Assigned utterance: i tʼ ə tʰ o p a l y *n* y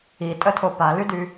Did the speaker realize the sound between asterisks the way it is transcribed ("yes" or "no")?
no